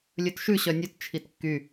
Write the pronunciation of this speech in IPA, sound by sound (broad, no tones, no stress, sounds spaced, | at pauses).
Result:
lʲ ɵ t ʃ ʉ ɕ œ nʲ ɵ t t͡ʃʰ i t kː y